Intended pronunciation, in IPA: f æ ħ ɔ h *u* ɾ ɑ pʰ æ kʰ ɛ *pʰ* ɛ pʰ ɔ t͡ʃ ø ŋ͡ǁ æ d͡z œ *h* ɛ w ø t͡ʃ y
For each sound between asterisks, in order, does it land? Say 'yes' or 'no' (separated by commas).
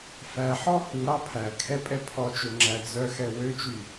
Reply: yes, no, no